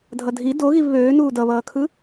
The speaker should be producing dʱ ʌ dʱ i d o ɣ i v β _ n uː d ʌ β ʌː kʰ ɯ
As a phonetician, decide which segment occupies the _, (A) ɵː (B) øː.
B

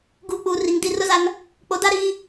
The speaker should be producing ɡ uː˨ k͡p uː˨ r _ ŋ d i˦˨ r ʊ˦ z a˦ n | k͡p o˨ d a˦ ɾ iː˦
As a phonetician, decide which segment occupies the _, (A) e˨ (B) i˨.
B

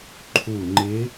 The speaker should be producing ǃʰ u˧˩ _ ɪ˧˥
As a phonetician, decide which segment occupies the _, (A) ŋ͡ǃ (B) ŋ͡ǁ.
A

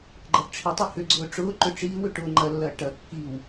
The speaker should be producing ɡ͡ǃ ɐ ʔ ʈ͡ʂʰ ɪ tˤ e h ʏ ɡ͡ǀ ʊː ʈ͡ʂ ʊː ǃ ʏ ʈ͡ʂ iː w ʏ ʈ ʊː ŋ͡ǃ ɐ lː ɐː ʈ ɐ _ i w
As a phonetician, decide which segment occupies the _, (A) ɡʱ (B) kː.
B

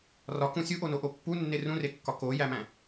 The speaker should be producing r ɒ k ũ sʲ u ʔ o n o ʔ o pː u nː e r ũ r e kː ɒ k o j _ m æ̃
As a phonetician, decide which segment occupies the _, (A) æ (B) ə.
A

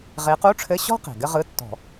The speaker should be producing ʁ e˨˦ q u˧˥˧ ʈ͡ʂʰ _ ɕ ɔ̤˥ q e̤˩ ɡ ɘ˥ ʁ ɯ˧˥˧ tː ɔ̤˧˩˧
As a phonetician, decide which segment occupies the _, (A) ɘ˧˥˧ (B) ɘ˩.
A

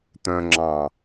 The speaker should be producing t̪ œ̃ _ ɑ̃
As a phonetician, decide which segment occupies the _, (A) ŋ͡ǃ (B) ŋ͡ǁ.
B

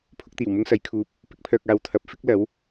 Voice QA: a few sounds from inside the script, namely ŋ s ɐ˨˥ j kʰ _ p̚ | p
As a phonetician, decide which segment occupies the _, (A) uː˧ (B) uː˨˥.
A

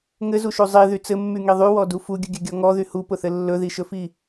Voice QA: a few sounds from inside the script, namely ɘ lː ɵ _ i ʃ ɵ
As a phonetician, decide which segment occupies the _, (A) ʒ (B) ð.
B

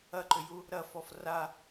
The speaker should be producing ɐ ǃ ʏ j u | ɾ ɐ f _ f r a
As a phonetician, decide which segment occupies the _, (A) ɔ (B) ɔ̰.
A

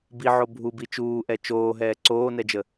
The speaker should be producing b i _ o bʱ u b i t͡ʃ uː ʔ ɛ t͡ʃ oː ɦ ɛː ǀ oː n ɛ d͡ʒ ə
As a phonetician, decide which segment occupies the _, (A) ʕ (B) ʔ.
A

